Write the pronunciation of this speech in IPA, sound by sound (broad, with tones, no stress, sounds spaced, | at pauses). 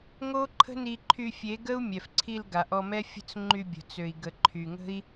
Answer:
ŋ o˦ ǃʰ ə̤˦ n i˧ ǃʰ y˧ fʲ e˨˦ ɡ ə˦ u̯ mʲ ɛ˨ f ǀʰ i˧ l ɡ a˨ ʔ ɔ˧ m ɛ˦ fʲ ə̤˦ t͡s ŋ͡ǃ y˧ bʲ ə̤˨ t͡s ø˨ i̯ ɡ ə˨ ǃʰ y˨ ŋ ə̤˦ i̯